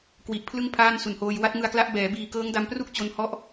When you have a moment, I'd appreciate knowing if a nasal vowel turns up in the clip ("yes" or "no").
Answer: no